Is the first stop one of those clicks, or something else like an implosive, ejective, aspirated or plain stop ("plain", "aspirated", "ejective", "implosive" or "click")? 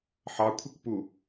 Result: aspirated